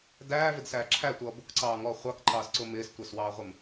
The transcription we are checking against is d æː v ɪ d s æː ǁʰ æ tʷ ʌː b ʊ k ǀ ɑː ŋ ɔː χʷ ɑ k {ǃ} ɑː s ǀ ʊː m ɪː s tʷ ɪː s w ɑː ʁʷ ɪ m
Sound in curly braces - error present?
no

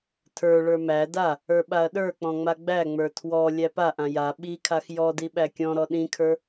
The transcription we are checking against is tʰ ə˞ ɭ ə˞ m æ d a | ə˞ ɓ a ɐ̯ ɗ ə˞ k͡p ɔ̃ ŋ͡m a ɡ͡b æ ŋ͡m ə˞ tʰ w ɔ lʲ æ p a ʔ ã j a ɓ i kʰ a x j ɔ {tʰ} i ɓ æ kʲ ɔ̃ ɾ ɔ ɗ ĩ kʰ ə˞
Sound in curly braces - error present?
yes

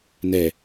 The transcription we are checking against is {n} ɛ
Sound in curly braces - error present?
no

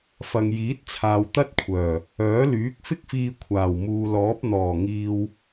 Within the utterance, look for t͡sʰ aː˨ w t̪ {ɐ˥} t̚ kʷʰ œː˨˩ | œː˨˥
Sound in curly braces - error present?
no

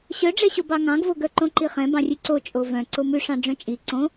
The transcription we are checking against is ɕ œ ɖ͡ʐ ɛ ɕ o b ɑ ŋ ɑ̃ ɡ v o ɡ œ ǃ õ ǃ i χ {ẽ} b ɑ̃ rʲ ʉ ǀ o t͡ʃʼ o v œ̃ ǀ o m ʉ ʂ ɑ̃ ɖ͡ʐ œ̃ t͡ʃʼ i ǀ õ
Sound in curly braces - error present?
yes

